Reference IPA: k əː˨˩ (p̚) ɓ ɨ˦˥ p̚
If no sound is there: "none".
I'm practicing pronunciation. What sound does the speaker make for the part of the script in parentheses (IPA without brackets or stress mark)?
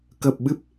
p̚